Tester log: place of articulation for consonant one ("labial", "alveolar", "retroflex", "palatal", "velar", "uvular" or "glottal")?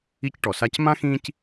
palatal